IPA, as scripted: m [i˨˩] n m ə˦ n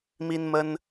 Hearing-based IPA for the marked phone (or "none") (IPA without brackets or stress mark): i˦